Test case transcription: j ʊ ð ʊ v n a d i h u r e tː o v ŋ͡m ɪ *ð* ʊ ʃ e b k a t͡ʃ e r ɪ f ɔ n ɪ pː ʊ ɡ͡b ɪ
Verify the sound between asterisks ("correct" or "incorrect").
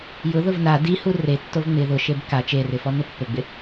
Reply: correct